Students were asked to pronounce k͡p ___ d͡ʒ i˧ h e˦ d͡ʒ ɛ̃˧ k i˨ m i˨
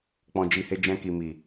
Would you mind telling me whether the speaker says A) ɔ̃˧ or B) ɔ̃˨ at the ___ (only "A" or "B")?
A